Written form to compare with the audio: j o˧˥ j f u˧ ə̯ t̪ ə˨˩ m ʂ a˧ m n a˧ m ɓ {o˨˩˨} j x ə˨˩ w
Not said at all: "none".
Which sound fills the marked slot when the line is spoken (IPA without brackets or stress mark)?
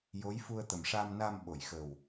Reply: o˨˩˨